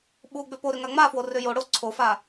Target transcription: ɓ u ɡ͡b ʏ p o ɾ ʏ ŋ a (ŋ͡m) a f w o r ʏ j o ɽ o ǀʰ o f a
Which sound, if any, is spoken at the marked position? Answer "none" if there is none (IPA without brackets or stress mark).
ŋ͡m